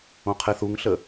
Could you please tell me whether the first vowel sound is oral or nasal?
nasal